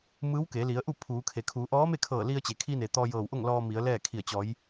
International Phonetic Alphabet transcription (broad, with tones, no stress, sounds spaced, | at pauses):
m ɯː˧˥ w k e˩˧ l i˩˧ ə̯ ʔ u˥˨ pʰ uː˩˧ kʰ e˩ kʰ uː˩˧ ʔ ɔː˧˥ m e˥˨ kʰ ɤː˧˩ l i˧ ə̯ t͡ɕ e˩ kʰ i˧ n e˩ t̪ ɔː˧ j ɤː˧˩ w ʔ o˥˨ ŋ l ɔː˧ m i˩˧ ə̯ l ɛː˥˨ kʰ i˧˩ ə̯ t͡ɕ ɔː˩˧ j